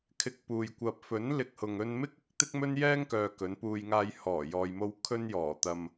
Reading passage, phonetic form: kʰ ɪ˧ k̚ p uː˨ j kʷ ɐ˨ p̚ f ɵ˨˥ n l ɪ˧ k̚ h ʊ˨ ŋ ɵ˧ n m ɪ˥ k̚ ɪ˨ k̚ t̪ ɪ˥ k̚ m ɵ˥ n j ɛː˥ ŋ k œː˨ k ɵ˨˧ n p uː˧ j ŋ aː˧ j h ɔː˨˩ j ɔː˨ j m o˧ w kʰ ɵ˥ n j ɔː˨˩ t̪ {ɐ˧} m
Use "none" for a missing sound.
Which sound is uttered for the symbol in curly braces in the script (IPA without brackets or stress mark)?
ɐ˧